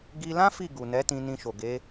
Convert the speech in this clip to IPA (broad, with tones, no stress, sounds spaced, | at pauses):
ɡ i˧ l ã˦ f i˦˨ ɡ u˨ n ɛ˨˦ t ĩ˧ n ĩ˧ ʃ o˨ ɡ e˨˦